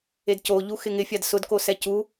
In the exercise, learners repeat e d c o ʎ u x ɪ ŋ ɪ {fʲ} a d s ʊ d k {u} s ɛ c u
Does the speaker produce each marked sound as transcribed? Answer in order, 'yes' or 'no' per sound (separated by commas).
yes, no